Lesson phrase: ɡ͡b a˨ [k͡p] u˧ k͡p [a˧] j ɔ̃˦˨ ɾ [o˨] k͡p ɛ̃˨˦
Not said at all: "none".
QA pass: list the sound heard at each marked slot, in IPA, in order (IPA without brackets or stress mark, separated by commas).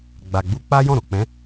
ɡ͡b, a˦, o˨